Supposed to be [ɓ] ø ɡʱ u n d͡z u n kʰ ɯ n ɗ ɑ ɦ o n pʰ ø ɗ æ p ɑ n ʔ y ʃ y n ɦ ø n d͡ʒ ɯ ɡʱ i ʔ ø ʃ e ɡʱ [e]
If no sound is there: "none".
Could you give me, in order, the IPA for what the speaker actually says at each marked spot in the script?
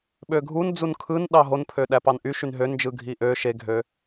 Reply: ɓ, ø

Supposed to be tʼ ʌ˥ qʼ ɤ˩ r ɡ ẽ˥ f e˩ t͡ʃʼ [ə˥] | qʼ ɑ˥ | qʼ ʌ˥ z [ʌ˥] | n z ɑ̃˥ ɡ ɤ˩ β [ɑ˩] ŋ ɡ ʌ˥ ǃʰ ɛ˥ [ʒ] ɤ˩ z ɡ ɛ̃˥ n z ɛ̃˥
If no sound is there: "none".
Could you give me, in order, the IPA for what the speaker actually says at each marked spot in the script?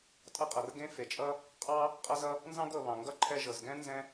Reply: ʌ˥, ʌ˥, ɑ̃˩, ʒ

